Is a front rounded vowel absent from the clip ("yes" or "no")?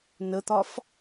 yes